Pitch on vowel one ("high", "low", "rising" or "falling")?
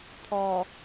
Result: low